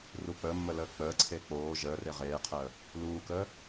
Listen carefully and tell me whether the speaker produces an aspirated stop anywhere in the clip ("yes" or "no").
yes